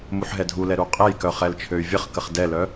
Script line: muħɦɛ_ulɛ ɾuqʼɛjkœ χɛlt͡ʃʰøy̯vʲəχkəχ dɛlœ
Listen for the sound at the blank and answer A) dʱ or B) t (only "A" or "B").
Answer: A